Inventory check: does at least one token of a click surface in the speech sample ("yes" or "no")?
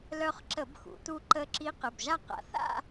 yes